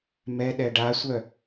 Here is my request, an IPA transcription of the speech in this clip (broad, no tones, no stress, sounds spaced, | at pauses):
m ɛ ɗ ɛ ɖ a sʷ œ